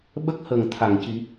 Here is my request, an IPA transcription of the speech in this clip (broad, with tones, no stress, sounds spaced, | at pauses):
ɓ ə˦˥ k̚ h ə˨˩ ŋ t̪ʰ a˨˩˨ ŋ c i˨˩˦